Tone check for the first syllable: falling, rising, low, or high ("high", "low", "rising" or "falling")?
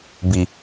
low